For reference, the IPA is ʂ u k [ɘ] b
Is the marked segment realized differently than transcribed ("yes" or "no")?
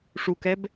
yes